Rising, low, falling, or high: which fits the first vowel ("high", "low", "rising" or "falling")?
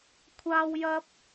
high